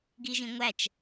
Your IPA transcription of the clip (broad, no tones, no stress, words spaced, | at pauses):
ɡiʒĩŋʷæt͡ʃ